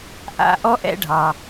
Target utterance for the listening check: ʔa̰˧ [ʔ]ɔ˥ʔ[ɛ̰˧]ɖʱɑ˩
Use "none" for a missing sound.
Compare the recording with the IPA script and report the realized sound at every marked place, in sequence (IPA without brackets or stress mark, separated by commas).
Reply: ʔ, ɛ̰˧